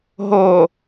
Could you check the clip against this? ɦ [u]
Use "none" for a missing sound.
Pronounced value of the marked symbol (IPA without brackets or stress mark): o